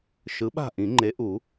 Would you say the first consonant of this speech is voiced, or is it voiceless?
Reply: voiceless